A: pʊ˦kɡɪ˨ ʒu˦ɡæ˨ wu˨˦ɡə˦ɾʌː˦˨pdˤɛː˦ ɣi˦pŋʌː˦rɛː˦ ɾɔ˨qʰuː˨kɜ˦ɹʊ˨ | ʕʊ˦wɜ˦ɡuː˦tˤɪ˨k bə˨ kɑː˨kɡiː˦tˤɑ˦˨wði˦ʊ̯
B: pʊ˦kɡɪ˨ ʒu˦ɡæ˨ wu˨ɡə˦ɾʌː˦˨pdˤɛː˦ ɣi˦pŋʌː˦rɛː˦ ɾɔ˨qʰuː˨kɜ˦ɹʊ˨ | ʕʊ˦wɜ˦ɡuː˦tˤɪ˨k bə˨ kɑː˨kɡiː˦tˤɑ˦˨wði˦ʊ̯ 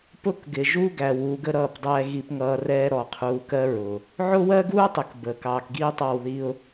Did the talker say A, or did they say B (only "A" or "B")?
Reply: A